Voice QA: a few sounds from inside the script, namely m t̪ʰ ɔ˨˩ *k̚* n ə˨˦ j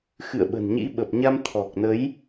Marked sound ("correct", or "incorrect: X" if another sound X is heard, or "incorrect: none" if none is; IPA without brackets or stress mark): correct